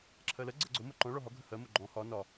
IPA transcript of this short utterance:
ǁʰ ɜ l ɜ ɡ͡ǀ ɜ ɡ͡ǀ o m o ǃ ɔ̃ ɭ ɔ ɦ ɒ ɡʱ ə h ɜ m o ɡ͡ǃ ɔ̃ h ɒ n ɒ

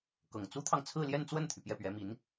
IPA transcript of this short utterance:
k ɤ˨˩ ŋ t͡s u˥ t̪ʰ ɑ˨ ŋ t͡sʰ ɹ̩˥˧ l j ɛ˥˧ n t͡s w ə˥˩ n t̪ʰ y˩ p j ɛ˥˩ p ɥ ɛ˧˥ m i˧˥ n

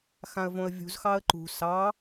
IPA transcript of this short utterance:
x ã ə̯ v õ ə̯ vʲ ṳ z x ɑ ə̯ ǃ ṳ s ɑ

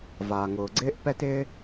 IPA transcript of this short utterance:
v aː˩ ŋ ʊː˩ ɡ͡ǀ ɪː˥ ʔ p ɛ˥ t ɪː˥

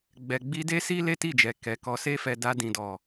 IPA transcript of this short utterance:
ɡ͡b ɛ˧ ɡ͡b i˦ d e˦ s i˦ l e˦ t i˦˨ d͡ʒ ɛ˨ k ɛ˨ k ɔ˧ s e˦ f ɛ˧ d a˧ d ĩ˨ d ɔ˨

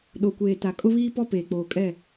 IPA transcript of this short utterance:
ɗ o˨ kʷ eː˨ t a˨ kʼ ʊ˦ β iː˦ p ɔ˦ p eː˨ k͡p oː˨ kʼ ɛ˦˨

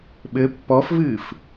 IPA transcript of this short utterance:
ɓ ɘ pː ɔ f v ɨː f

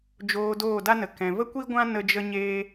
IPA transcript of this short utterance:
d͡ʒ oː˧ d oː˦˨ d a˦ n ə˨ k ɛ̃˨ v ə˦ kʷ i˦ ɡʷ ã˦ n ə˦ d͡ʒ ə˦ ɲ eː˦

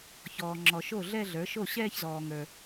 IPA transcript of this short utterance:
ç ɔː˨ ŋ͡ǁ ɔ˨ ʃ o˥˩ ɮ ɛ˥˧ ɮ ə˞˩˥ ʃ o˥˩ ɕ ɛː˥˧ ç z ɔː˨ ŋ ə˞˨

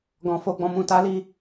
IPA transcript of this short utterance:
ɡ ɔ̃˨ f o˧ ɡ͡b ɔ̃˨ m ũ˨ t a˨˦ l i˧

